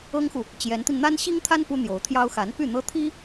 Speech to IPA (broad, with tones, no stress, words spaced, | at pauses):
ɤ˥ŋxu˨ | t͡ɕjɛ˧˥nt̪i˧n n̪a˥nɕi˥ŋt̪ʰa˥n pu˥n̪jo˧˥ʊ̯t̪ʰjɑ˥ʊ̯ xa˧˥n py˥˩n̪ɤ˥t̪ʰi˥